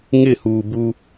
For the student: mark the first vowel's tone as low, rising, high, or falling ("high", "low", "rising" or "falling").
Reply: falling